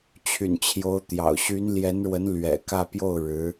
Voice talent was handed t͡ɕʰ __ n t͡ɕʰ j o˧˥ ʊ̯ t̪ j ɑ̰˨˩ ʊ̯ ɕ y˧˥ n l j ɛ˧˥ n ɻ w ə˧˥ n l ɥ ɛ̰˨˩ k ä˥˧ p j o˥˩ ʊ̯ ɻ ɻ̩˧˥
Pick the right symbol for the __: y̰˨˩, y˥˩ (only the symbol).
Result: y̰˨˩